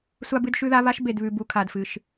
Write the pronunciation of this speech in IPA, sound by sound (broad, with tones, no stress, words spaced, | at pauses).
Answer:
sʷa˦bɨ˦dʃʉ˦ða˦ βa˦ʃ be˨dβʉ˨bu˨ kʰa˨dfɨ˨ʃ